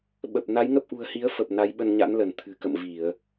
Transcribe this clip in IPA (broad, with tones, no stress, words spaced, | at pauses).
ɓə˨˩p̚ na˨˦jŋə˦˥p̚ʔṳ˨˩ə̯hi˨˦ə̯ fə˨˩p̚ na˨˦jɓə˧nɲa̰˧˥nlə˧˩n t̪ʰɨ̤˨˩kə̰˧˨m vi˧˩˨ə̯